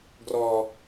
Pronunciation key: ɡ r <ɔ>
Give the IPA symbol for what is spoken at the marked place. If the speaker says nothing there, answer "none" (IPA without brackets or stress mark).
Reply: ɔ